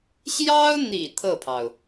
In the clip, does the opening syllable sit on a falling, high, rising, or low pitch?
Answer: high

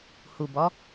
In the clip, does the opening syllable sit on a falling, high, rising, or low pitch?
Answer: low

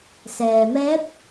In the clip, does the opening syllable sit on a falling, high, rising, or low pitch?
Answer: low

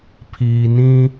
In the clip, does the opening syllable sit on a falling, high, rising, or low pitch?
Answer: low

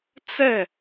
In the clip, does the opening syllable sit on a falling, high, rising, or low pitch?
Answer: falling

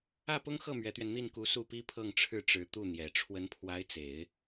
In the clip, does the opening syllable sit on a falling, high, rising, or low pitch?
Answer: falling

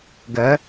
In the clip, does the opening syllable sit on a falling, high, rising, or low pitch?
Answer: rising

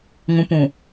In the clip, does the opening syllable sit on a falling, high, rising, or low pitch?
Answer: low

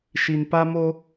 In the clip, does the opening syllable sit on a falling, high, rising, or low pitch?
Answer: low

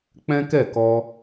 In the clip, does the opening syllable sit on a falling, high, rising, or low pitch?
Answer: high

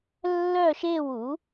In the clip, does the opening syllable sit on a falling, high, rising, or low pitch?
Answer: falling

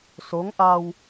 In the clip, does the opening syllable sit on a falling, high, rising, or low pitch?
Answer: rising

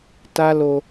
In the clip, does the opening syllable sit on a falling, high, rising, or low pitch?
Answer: high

